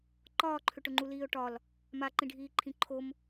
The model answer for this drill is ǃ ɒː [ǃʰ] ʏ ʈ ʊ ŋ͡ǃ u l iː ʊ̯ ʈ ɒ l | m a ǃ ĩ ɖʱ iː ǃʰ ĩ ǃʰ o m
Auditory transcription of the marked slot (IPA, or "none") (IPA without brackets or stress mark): ǃʰ